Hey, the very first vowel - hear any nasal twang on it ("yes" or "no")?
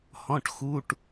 yes